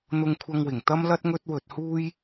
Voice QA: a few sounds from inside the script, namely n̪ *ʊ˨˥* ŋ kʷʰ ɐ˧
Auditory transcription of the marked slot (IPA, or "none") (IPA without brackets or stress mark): ʊ˧